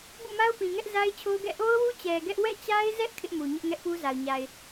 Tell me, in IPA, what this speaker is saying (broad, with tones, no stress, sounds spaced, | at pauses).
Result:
b ṵ˦˨ m a˦ ʊ̯ p ĩ˨ ŋ ɛ˦ ʔ z a˦ ɪ̯ t͡ɕʰ o˦ ʊ̯ ɡ ɛ̰˦˨ ʔ o˦ ʊ̯ w u˦ t͡ɕ ɛ˨ ɡ ɛ˦ ʔ w ɛ̰˦˨ t͡ɕ a˦ ɪ̯ z ɛ˦ ʔ kʰ ɪ˦ ʔ m u˨ ɲ ɪ˦ ʔ ŋ ɛ˦ ʔ p u˦ z a˨ ʊ̯ ɲ a˨ ɪ̯